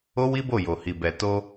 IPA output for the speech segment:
o˦ w i˦ b o˦˨ j o˨ h i˨ b ɛ˨ t o˧

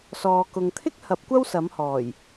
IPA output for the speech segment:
s ɔː˨ k ʊ˨ ŋ t̪ʰ ɪ˥ k̚ h ɐ˨˥ p̚ kʷ ɐ˥ w s ɐ˨˥ m h ɔː˨˩ j

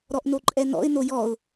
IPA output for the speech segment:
ɾ ɔ ʔ n o ǃʼ ɛ n ɔ̰ ɪ̯ n o j ɔ ʊ̯

